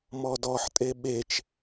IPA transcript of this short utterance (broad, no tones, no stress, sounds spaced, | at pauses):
m ɔ d ɔ ħ tʼ e ɓ e t͡ʃ